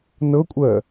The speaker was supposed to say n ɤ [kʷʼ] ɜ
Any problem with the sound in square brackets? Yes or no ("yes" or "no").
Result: no